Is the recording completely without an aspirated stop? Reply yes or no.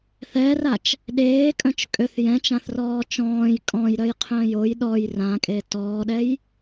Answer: no